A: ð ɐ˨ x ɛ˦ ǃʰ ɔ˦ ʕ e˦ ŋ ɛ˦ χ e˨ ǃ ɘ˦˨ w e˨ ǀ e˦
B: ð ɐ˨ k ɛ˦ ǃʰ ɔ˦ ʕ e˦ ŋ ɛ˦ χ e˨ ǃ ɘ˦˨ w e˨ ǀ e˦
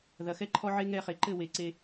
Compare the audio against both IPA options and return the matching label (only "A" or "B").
A